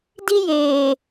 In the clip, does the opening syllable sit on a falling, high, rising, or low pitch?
high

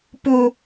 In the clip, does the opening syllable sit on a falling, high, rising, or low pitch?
high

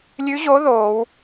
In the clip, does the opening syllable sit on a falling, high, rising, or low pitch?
rising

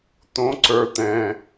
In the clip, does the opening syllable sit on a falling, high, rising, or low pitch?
rising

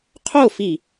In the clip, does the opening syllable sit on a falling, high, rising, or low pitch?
falling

